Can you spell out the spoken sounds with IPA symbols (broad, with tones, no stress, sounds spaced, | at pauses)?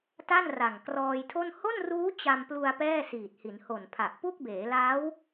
t a˥˩ n r a˨˩ ŋ k r ɔː˧ j tʰ o˥˩ n h o˥˩ n r uː˦˥ t͡ɕ a˧ m p l u˧ a̯ p ɛː˥˩ s iː˨˩ t̚ h i˩˦ n h o˨˩ n pʰ a˨˩ ʔ p u˥˩ k̚ b eː˩˦ l aː˦˥ w